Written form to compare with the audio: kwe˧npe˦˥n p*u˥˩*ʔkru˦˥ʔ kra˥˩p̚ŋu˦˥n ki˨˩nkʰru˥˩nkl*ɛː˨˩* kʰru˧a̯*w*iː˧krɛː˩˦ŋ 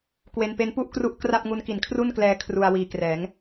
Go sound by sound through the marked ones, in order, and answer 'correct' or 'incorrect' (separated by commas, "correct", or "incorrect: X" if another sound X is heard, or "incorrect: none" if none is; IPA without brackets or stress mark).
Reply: correct, incorrect: ɛː˧, correct